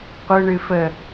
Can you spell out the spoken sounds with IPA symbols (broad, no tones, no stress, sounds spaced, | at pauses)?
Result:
qʷ ɯ ɳ ɨ f ə